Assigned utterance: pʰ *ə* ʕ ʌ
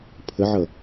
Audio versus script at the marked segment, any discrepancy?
no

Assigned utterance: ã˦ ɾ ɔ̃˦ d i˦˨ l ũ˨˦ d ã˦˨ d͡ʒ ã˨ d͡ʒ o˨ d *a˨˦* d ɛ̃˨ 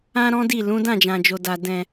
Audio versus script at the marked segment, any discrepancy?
yes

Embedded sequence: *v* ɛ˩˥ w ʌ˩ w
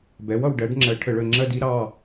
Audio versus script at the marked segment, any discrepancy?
yes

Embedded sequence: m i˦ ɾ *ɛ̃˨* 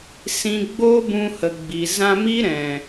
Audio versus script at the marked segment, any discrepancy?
no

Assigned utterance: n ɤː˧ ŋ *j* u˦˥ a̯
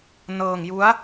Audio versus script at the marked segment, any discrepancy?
no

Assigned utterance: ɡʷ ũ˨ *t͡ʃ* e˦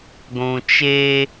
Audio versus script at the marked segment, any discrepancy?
no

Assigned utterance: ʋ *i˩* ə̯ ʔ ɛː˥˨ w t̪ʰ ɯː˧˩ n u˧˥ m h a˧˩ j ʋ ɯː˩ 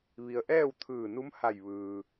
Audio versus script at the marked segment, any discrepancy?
no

